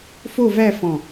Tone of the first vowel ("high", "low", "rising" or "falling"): falling